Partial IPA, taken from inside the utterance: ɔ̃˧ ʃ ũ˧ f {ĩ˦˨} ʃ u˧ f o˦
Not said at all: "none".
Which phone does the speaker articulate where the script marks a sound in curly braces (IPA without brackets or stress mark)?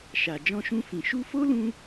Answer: ĩ˨